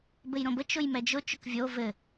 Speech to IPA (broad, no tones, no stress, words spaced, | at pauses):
bɘjɾõbə t͡ʃʊjmɛd͡ʒʊ t͡ʃʊkvʲo vɘ